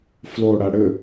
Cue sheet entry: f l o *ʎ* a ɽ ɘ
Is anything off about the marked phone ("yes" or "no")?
yes